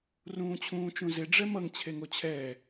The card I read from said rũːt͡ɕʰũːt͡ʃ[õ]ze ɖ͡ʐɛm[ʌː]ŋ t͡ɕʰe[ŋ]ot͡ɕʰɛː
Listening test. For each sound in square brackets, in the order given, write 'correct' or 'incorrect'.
incorrect, incorrect, correct

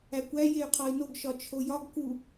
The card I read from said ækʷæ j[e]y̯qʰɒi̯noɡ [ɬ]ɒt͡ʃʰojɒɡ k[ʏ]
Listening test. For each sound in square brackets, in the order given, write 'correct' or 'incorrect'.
correct, incorrect, incorrect

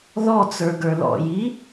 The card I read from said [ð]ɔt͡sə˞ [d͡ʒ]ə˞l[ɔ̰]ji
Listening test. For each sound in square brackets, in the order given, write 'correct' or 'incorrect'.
correct, incorrect, correct

